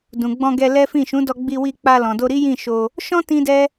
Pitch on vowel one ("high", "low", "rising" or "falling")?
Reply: low